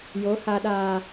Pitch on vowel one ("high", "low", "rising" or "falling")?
rising